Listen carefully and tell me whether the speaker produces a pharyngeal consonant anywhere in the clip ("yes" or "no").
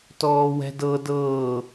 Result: no